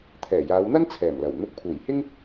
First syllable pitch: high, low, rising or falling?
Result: low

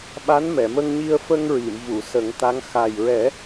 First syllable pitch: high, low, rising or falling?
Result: rising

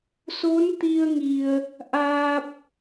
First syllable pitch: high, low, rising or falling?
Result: rising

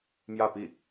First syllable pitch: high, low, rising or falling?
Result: falling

